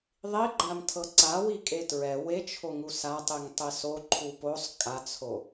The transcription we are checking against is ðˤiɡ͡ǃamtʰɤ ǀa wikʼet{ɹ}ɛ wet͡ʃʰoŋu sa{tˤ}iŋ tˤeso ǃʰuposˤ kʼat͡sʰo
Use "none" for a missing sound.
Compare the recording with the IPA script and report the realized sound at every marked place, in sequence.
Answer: ɹ, tˤ

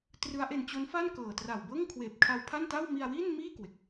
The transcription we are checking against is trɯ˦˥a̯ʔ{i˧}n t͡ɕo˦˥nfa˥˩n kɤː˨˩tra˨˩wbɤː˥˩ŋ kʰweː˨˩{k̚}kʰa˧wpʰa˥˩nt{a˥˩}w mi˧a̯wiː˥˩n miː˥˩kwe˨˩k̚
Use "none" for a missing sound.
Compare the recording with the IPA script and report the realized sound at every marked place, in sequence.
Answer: e˧, p̚, a˥˩

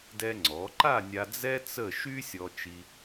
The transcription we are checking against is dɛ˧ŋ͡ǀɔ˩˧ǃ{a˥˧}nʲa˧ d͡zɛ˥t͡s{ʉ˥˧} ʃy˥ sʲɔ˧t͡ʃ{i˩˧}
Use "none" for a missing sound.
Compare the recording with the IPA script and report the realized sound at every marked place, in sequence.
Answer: a˥˧, ə˥˧, i˧

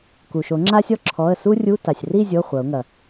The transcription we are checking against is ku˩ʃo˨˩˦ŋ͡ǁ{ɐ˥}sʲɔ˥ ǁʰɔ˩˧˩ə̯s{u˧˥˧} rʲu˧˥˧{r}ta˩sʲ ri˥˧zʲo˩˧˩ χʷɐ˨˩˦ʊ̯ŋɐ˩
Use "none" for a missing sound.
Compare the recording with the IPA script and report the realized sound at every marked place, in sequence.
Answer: a˥, u˥, none

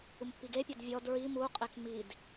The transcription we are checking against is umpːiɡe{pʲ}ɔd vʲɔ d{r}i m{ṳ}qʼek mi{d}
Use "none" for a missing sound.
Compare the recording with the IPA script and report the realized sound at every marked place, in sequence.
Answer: pʲ, ɹ, u, d

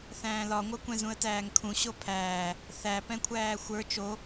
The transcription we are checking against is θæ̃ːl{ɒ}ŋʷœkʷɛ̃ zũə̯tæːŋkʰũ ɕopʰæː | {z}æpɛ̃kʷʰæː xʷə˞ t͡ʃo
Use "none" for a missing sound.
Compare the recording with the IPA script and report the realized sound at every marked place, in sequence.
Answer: ɒ, θ

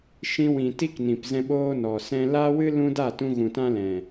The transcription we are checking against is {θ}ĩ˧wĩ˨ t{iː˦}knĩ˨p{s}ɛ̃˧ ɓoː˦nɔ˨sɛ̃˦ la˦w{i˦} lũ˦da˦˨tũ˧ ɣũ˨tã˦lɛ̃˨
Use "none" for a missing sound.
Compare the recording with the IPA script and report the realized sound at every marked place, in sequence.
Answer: ʃ, i˦, z, ɨ˦

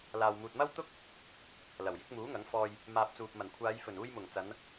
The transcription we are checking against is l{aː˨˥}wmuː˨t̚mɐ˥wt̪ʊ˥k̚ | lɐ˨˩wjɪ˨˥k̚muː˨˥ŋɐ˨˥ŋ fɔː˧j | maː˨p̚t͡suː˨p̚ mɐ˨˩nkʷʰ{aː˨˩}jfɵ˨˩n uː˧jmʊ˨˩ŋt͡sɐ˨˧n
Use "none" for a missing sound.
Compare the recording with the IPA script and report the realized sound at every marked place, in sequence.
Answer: aː˨, aː˨˧

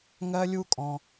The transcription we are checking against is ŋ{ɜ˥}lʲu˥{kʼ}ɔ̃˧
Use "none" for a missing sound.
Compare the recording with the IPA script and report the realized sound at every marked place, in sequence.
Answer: ɜ˥, kʼ

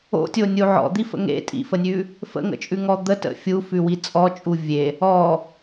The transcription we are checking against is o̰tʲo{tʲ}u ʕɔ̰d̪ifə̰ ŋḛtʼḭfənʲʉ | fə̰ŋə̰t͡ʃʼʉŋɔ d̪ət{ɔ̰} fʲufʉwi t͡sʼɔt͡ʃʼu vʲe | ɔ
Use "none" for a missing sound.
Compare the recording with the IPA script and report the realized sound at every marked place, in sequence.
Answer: nʲ, ə̰

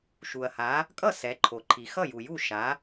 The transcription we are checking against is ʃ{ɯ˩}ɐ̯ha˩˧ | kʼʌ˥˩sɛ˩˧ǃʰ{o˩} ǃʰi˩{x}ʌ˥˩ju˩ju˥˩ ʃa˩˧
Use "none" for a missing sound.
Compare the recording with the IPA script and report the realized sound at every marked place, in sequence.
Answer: u˩, o˩, x

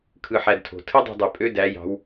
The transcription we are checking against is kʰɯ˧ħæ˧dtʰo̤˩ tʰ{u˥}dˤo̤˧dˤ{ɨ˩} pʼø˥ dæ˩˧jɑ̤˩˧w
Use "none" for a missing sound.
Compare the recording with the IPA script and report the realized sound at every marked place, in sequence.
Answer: ɯ˥, y˩

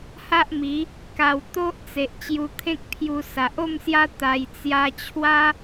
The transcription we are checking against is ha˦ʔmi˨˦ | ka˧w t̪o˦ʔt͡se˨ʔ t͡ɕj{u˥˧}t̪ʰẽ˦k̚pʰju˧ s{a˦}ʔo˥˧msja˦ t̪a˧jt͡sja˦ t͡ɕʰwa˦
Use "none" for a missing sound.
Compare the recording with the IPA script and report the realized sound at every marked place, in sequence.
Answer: u˧, a˨

